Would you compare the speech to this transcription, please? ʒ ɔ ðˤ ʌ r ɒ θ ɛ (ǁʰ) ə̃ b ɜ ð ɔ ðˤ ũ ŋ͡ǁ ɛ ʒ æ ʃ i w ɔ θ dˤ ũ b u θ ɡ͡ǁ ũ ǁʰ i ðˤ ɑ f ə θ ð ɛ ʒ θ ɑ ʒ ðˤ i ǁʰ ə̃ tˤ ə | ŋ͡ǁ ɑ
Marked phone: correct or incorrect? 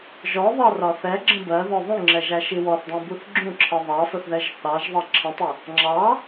incorrect: ɡ͡ǁ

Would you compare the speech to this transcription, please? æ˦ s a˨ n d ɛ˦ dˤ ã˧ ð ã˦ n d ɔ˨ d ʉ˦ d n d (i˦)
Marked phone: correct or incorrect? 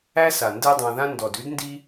correct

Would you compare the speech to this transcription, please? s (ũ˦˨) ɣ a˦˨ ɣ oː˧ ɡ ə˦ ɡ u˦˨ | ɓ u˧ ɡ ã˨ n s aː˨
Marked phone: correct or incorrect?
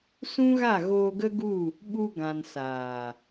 incorrect: ũ˦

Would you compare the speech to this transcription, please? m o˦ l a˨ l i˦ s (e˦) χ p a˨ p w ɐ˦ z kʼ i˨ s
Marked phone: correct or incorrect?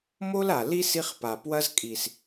incorrect: i˦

